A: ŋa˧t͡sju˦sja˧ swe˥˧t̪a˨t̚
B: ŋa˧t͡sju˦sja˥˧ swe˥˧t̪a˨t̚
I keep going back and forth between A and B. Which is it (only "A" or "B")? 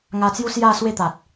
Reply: B